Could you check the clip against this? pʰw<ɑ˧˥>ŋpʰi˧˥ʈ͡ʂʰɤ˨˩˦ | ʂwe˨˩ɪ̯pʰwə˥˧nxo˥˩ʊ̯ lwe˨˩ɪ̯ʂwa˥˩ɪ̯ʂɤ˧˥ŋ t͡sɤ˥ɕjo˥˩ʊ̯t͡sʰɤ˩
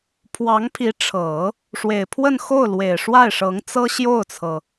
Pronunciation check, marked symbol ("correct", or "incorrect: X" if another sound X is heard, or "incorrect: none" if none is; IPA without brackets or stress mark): correct